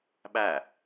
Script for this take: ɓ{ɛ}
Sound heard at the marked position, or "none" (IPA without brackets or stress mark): æ